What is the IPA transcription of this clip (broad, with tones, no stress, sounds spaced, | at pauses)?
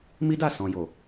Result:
m i˦ d a˦˨ s ɔ̃˨ j o˨